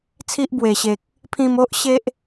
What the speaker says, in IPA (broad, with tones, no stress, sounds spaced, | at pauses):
t͡sʰ i˦ ʔ b w e˨˩ ɕ e˨ k̚ | pʰ ĩ˧ m o˦ ʔ ɕ e˦ ʔ